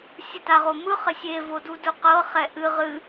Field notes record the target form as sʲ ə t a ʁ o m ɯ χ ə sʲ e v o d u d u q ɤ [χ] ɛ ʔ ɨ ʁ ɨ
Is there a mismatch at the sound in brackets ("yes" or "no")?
no